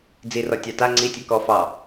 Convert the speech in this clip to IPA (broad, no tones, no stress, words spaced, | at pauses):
d͡zi rɔtʲɑta ŋ͡ǀi tʲɛkɔ fɑ